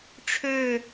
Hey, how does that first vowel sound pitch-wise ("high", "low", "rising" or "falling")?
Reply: falling